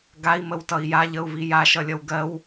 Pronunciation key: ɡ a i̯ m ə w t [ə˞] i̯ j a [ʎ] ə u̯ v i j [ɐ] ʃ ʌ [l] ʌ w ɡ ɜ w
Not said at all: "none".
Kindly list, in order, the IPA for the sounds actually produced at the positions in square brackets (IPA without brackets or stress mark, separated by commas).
ʌ, ʎ, a, lʲ